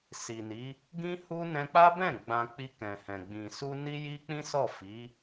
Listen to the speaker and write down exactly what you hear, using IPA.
s i˨ n i˨˦ | ɡ ĩ˦ h u˦ n ɛ̃˧ k͡p a˦ b ɛ̃˦˨ ɡ͡b ã˧ k͡p i˧ k ɛ̃˨ h ɛ̃˨ ɡ͡b ĩ˨ s u˧ n i˦ j i˦ k͡p ĩ˦ s ɔ˦˨ f i˨˦

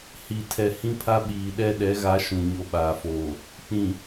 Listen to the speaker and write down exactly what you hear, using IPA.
h i˨ tʰ ɛ˨ h ĩ˦ pʰ a˦ ɓ iː˨ ɗ ɛ˦˨ ɗ ɛ˨˦ ɣ a˨˦ ʃ ũ˨ ɲ o˦ ɓ aː˨ f oː˨ | k͡p ĩ˨

